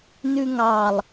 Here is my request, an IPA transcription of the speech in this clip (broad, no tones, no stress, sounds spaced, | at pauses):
n ʉ ŋ ɑ lˠ